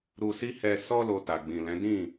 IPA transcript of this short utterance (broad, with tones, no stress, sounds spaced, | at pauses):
ɾ u˧ s i˦ h ɛ˧ s ɔ˧ l o˨ t a˨ ɡ͡b ĩ˨ l ɛ̃˨˦ d ĩ˦˨